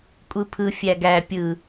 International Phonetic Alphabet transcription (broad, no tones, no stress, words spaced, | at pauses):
kʷʼɯpʰɯ fʲæɡæ pʲɯ